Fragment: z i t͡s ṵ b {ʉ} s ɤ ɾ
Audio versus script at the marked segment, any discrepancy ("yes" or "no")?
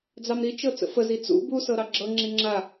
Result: yes